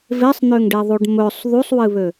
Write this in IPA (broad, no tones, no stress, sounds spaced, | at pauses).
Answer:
v e sˤ n̪ ø ŋ ɖ e ðˤ u ɖ m ɵ sˤ ð u sˤ w ɨ β ø